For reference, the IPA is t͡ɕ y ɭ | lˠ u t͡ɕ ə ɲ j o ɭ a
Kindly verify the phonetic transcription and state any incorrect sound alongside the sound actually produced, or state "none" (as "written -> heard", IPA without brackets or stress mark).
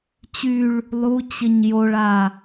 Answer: none